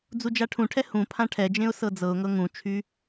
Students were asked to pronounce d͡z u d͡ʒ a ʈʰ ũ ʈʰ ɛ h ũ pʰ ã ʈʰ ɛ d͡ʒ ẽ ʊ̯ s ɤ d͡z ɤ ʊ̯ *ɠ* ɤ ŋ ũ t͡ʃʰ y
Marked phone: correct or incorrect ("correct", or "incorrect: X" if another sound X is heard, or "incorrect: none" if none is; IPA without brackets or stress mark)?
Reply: incorrect: ŋ